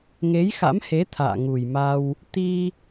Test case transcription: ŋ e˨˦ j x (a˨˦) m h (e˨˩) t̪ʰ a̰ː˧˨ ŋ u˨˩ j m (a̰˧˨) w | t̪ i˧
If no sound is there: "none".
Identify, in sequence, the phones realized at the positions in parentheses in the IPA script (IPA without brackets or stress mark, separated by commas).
a̰˧˥, e˨˦, a˧